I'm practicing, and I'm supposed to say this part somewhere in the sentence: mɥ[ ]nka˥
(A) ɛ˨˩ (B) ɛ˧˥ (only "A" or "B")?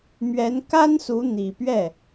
B